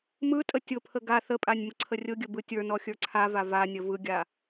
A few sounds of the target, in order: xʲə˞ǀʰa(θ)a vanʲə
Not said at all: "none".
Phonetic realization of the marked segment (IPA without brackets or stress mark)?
v